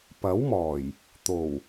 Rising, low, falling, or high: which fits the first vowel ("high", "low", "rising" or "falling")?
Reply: rising